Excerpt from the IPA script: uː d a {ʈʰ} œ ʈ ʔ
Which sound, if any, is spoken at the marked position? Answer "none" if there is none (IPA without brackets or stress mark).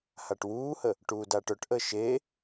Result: ʈ